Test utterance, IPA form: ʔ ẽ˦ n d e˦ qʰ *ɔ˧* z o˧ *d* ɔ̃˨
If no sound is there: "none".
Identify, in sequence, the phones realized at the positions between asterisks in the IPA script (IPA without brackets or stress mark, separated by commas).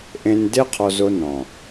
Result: ɔ˧, n